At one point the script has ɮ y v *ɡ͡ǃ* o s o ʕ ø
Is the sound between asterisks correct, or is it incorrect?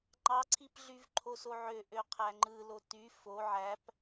incorrect